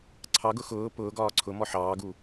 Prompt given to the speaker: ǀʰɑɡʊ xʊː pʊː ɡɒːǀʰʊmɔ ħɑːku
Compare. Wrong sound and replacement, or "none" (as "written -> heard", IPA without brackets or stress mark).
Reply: k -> ɡ